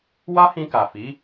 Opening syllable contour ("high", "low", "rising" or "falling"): high